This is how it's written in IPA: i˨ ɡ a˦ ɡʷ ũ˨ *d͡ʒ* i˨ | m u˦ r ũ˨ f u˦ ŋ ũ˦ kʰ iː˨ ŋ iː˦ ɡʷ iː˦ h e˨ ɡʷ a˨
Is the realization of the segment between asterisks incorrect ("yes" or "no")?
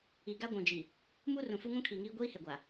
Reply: no